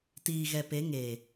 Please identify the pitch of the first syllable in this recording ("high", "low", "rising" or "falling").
low